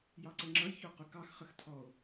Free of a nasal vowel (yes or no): yes